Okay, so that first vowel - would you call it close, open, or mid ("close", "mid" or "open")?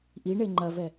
close